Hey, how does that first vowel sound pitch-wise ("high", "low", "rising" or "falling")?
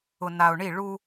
low